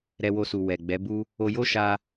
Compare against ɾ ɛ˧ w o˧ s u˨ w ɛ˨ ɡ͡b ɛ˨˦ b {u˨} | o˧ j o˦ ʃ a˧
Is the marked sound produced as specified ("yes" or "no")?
no